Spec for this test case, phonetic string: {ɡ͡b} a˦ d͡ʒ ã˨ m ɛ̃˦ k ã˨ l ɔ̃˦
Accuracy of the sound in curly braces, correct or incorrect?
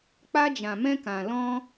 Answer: incorrect